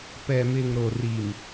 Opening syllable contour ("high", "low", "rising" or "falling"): low